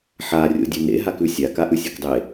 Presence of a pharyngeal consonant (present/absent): present